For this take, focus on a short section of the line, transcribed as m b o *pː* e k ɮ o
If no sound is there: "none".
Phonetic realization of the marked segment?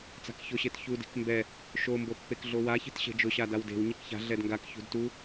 pː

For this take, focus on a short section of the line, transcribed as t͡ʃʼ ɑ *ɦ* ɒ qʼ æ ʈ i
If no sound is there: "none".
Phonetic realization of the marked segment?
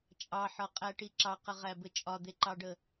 ħ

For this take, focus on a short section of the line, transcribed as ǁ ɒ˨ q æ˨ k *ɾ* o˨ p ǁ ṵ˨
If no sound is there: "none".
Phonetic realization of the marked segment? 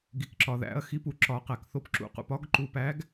θ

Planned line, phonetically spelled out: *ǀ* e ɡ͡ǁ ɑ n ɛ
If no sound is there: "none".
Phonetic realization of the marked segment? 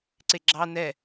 ǀ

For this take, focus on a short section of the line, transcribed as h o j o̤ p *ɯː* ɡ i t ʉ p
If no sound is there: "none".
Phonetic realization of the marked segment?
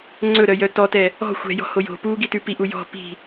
uː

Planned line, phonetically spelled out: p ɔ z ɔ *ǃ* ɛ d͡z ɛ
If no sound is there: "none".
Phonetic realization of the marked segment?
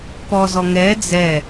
ŋ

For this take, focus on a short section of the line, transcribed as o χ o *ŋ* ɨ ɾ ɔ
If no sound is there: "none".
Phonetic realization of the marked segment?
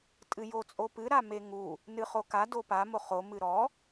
m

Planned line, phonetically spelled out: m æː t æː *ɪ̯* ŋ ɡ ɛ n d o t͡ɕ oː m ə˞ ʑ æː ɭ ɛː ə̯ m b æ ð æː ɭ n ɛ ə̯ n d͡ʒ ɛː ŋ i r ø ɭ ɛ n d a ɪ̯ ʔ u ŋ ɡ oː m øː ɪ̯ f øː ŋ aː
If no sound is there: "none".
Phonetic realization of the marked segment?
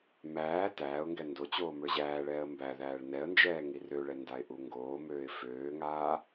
ʊ̯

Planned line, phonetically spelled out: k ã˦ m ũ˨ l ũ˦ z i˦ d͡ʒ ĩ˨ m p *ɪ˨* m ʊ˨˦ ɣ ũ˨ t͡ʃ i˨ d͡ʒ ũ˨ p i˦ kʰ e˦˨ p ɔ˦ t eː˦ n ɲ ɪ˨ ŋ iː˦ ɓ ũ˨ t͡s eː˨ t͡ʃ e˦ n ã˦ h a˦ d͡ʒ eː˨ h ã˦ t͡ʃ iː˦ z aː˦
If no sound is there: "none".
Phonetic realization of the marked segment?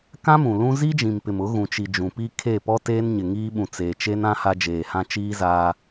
ɪ˨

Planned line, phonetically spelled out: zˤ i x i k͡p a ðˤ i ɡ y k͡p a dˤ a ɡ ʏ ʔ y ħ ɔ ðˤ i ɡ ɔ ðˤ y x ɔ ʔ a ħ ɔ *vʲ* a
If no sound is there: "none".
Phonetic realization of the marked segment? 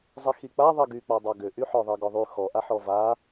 v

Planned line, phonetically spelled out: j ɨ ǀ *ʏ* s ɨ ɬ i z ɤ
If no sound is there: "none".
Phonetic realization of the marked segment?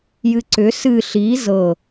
ʏ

